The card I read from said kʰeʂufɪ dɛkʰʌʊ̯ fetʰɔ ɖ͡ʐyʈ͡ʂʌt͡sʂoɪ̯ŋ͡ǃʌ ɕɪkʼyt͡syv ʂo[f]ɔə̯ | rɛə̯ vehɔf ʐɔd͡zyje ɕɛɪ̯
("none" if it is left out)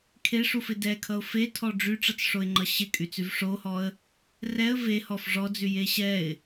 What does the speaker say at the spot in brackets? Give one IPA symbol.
h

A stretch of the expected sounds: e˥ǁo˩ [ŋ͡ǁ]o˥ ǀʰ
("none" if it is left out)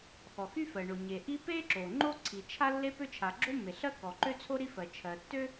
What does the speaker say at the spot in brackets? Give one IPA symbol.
ŋ͡ǃ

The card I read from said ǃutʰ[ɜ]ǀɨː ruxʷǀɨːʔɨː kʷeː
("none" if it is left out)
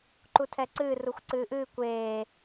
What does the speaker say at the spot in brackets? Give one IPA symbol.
ɛ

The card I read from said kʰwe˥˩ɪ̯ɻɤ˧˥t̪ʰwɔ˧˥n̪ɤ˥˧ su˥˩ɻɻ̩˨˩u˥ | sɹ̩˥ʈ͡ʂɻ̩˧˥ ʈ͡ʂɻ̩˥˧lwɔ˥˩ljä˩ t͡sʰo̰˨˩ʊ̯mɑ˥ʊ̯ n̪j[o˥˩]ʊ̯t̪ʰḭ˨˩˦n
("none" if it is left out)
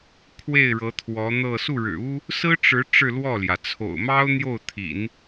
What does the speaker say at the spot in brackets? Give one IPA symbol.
o˥˩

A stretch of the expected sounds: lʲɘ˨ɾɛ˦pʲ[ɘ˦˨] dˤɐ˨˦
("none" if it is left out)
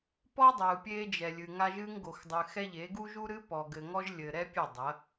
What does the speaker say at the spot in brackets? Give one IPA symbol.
ɘ˦˨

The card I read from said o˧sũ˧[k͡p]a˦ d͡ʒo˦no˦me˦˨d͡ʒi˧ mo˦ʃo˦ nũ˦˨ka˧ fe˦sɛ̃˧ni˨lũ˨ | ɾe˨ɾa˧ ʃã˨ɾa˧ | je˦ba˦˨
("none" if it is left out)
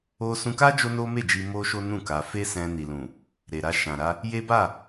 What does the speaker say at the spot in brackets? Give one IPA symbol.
k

